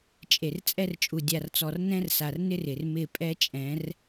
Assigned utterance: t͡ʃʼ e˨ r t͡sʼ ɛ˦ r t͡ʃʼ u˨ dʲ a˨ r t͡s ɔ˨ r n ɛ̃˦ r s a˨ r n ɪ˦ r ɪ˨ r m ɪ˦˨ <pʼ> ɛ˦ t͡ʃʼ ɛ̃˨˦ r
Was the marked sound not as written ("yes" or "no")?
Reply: no